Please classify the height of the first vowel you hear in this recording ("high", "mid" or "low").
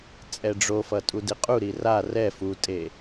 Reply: mid